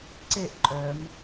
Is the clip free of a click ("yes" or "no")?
no